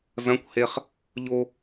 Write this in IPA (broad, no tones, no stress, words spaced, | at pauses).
zɐ̃kʷheχ | ʎo